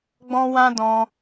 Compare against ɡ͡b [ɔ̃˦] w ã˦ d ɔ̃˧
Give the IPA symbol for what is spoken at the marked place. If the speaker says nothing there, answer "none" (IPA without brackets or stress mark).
ɔ̃˦